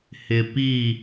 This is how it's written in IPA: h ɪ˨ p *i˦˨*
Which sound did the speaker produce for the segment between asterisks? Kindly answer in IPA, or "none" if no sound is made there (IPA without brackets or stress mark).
i˦˨